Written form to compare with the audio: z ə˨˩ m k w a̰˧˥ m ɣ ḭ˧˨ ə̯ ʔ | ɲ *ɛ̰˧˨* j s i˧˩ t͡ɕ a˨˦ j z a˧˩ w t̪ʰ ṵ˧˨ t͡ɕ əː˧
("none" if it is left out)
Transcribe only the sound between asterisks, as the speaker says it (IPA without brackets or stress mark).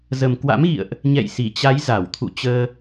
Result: ɛ̰˧˨